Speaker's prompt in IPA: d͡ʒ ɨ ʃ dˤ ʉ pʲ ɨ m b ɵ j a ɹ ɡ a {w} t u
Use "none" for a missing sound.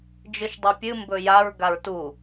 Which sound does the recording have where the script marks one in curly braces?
ɹ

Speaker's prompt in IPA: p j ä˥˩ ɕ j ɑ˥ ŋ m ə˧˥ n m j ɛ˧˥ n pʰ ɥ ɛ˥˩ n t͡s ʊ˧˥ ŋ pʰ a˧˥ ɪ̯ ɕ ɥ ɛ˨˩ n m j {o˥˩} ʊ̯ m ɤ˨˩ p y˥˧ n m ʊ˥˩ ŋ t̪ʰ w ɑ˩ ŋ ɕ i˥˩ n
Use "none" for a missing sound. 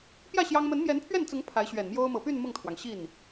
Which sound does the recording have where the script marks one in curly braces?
o˥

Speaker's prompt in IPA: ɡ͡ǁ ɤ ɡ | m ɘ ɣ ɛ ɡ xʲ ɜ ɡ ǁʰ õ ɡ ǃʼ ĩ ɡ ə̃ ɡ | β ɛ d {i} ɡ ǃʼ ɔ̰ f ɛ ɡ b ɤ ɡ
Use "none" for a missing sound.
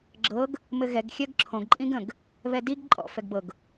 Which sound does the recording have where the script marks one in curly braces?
i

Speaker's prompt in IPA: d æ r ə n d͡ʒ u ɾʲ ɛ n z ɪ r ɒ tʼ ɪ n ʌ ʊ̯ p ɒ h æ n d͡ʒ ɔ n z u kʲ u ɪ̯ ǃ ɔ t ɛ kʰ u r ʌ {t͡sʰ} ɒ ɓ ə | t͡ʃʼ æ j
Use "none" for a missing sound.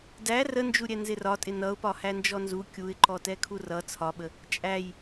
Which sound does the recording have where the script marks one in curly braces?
t͡sʰ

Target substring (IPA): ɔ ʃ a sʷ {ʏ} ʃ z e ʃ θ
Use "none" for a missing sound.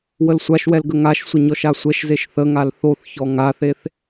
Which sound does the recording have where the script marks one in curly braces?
ɛ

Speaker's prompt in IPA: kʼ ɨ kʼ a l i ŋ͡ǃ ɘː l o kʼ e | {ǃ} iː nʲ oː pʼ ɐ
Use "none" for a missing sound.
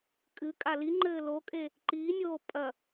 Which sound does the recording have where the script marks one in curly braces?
ǃ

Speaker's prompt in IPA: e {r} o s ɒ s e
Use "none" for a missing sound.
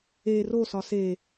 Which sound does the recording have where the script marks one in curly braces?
r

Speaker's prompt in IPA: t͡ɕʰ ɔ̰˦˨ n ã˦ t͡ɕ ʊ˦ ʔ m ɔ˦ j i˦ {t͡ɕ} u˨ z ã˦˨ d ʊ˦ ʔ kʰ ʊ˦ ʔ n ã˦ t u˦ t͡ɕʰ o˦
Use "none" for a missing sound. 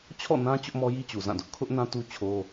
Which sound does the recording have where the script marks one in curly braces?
t͡ɕ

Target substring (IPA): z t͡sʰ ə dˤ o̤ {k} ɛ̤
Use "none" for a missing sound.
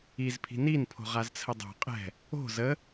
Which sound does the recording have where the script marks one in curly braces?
qʼ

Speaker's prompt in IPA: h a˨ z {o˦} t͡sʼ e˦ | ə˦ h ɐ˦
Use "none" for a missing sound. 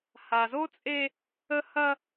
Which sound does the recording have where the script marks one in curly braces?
o˦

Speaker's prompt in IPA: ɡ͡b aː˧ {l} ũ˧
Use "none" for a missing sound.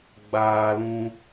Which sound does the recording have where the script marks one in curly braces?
l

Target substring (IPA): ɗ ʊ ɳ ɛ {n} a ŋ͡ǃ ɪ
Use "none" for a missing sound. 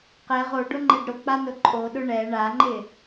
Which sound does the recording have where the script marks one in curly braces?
ɳ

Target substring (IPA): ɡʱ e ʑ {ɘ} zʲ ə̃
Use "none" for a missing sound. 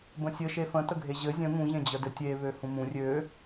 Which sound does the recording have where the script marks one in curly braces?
ɘ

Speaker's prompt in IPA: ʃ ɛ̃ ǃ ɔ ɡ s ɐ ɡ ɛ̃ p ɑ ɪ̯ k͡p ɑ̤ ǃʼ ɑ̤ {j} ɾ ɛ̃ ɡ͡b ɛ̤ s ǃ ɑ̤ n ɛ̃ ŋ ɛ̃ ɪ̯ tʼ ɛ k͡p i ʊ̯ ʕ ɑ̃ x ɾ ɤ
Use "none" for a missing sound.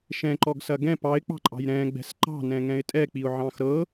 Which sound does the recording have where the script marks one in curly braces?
j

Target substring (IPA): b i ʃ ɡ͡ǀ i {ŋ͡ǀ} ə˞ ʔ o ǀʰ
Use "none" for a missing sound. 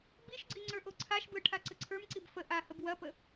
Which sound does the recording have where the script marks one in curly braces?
ŋ͡ǀ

